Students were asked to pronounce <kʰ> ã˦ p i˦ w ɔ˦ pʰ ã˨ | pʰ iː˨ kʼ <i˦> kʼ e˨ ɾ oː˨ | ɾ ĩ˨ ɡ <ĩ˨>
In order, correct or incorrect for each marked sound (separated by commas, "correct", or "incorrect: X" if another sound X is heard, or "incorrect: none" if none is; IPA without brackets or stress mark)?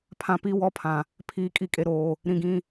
incorrect: pʰ, incorrect: i˨, correct